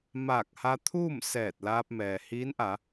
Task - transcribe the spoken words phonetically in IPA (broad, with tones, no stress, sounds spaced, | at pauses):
m aː˧˩ k̚ h a˧ t̪ʰ uː˥˨ m s ɛː˧˩ t̚ l aː˧ p̚ m ɛː˩ h iː˧˥ n ʔ a˩˧